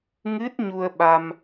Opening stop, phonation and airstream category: plain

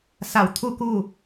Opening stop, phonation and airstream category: aspirated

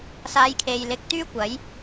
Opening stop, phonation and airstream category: aspirated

